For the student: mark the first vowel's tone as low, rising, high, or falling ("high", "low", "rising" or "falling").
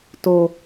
low